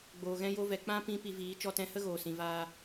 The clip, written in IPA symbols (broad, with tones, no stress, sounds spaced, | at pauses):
ɡ͡b oː˨ ɣ ɛ̃˦ j o˦ v ɛ˨ k͡p ã˦ p ĩ˦ p i˧ v iː˨˦ t͡ʃ ɔ˧ t ɛ̃˧ h ə˦ ɣ oː˨ s ĩ˨ v aː˧